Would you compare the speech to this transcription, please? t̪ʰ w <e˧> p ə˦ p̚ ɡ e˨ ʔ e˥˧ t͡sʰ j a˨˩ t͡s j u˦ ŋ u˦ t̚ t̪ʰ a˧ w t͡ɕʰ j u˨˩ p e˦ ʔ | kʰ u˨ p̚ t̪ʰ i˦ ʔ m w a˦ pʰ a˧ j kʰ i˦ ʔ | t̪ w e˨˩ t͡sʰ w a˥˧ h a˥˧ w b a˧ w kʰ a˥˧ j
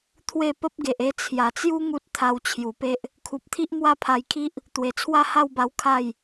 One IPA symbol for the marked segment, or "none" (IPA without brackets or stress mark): e˥˧